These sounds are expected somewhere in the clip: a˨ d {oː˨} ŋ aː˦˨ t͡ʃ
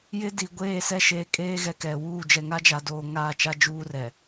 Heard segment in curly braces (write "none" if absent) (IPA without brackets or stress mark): oː˨